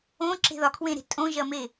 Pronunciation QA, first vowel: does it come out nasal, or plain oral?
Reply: nasal